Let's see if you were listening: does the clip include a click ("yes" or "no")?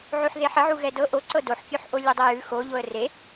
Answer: yes